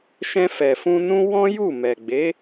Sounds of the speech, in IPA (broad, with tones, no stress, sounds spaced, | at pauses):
ʃ ɛ̃˧ f ɛ˨ f ũ˧ n ũ˦ w ɔ̃˦ j u˦˨ m ɛ˨ ɡ͡b e˨˦